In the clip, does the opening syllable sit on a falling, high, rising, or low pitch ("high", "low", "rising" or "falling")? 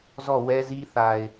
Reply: falling